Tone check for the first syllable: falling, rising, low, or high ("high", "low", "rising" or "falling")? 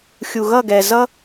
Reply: low